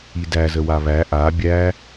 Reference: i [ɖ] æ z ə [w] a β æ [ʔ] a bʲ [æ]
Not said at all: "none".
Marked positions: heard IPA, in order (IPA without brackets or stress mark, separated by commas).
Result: d, w, ʔ, æ